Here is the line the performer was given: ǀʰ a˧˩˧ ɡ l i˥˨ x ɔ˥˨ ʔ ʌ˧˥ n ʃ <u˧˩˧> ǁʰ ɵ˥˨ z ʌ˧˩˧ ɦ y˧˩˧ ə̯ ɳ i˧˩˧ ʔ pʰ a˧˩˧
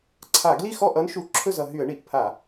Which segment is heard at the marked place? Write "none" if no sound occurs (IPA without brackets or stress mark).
u˧˩˧